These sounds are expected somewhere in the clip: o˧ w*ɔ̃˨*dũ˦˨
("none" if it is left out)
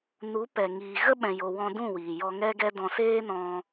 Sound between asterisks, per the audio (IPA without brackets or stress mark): ɔ̃˧